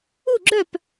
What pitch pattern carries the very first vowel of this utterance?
falling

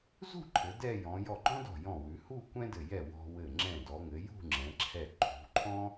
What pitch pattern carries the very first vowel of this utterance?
falling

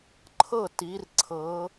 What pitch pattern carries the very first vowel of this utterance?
falling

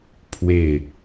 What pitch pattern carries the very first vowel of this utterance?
falling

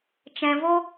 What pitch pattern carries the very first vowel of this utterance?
low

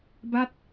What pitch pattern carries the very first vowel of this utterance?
falling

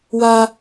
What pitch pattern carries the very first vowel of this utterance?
high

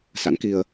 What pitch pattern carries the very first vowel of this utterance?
rising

